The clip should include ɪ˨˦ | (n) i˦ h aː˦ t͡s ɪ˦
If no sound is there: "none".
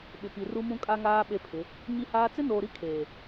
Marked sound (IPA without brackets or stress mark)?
ɲ